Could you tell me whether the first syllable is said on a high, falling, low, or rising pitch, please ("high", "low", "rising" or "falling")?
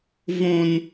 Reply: high